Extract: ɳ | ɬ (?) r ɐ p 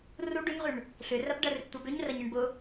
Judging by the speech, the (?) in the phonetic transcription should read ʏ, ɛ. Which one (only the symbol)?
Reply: ʏ